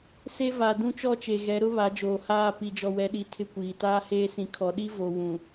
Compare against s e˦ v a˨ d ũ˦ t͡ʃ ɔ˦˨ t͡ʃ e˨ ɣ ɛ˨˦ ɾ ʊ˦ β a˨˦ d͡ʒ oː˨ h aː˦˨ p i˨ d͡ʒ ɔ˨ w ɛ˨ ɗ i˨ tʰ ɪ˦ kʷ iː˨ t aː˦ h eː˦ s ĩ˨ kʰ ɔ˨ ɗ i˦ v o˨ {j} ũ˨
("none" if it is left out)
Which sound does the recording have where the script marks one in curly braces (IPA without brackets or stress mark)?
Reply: w